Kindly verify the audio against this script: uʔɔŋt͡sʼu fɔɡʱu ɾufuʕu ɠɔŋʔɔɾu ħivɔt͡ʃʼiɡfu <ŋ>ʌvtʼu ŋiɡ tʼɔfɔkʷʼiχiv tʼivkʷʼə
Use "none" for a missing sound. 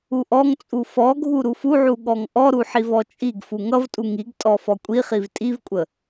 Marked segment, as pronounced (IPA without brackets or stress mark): ŋ